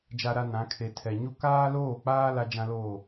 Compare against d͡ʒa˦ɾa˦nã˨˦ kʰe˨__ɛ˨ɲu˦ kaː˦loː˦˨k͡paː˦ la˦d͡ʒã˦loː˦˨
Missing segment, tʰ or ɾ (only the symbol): tʰ